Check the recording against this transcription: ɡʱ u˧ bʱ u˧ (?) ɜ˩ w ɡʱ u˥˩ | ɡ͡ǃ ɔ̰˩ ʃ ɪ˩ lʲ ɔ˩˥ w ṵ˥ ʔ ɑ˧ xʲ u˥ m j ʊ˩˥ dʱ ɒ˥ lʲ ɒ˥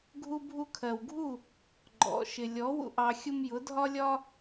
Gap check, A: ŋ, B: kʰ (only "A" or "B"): B